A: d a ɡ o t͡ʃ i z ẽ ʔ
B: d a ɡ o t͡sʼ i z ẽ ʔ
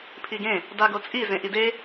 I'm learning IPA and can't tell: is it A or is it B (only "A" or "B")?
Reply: B